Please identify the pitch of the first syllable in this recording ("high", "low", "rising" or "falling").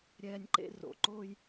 high